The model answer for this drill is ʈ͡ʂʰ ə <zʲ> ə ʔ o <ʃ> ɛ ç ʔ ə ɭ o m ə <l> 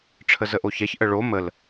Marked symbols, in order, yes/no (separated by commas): no, no, yes